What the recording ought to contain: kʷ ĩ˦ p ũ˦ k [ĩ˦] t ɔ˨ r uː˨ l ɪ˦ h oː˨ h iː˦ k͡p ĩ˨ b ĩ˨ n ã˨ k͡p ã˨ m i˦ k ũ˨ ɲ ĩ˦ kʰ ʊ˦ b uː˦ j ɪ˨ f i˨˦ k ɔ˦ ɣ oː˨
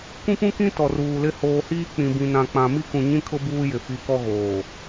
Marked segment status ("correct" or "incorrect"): correct